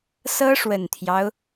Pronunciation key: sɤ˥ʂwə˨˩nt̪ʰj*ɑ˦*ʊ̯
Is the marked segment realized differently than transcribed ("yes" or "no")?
no